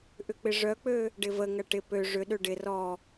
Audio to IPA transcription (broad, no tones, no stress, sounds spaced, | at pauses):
ʔ ʏ k͡p ɪ ʐ œ k͡p ø | ɖ ɪ v ə ŋ ɐ ʈ ɪ p ø ʐ ʏ ɗ ø ɖ ɪ r ɔ